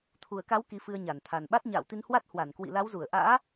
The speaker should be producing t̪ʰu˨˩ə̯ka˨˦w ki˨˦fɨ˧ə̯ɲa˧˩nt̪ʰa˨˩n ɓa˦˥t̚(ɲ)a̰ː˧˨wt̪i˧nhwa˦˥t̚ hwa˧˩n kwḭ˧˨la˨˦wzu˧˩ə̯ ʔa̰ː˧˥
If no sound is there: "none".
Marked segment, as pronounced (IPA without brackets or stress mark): ɲ